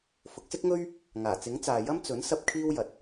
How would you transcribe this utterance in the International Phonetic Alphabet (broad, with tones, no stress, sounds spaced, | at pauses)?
f ʊ˨˥ k̚ s ɪ˥ k̚ ŋ ɵ˥ ɥ | ŋ aː˨˩ t͡s ɪ˨˥ ŋ t͡s aː˨ j ɐ˥ m t͡s ɵ˨˥ n s ɐ˥ p̚ kʰ iː˥ w j ɐ˨ t̚